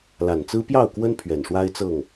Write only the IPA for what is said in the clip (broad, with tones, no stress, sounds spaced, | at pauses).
l a˨˩ n t͡s ɹ̩˦ p j ɑ˥˨ ʊ̯ k w ə˦ n pʰ ɥ ɛ˨˩ n ʂ w a˦ ɪ̯ t͡s ɤ˥˨ ŋ